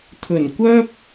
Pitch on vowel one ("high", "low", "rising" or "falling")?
low